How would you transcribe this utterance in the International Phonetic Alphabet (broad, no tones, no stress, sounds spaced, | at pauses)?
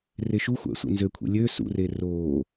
r e ʃ u xʷ æ̰ sʷ ḛ n z ø kʷʰ ḛ lʲ ø s ṵ r e r oː